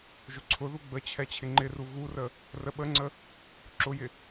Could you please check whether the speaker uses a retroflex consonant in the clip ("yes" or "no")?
no